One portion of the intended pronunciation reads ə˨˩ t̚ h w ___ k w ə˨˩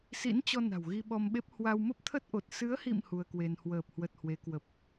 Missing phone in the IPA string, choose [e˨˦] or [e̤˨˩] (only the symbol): e˨˦